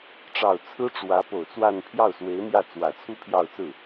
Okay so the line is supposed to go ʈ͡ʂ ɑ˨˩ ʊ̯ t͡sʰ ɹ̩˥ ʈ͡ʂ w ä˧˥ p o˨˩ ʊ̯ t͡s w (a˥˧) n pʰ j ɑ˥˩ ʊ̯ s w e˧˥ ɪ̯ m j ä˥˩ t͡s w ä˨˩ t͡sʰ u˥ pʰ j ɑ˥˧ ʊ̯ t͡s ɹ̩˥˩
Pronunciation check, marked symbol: correct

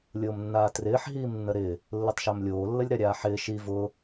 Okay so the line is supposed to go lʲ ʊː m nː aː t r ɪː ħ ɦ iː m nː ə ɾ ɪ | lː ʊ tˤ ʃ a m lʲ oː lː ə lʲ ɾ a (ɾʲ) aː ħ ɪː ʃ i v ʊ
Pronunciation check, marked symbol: correct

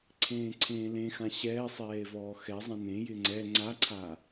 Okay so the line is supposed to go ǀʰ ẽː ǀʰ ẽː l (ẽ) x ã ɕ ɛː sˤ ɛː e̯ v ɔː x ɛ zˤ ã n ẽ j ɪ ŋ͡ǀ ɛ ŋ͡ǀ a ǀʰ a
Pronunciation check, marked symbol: correct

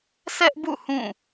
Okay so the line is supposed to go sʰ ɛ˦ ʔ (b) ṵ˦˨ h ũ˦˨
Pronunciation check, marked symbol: correct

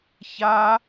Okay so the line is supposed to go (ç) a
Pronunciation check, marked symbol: correct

